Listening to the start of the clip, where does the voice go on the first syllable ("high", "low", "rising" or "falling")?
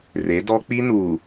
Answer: rising